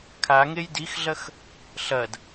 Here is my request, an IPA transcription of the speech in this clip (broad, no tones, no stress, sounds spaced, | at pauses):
kʰ a ŋ e j d i x ɮ ɐ x | ɬ ɐ d